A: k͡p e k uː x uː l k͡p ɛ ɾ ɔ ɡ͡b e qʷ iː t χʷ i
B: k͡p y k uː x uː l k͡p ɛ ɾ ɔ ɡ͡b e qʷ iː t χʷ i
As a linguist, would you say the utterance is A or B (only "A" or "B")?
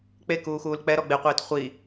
A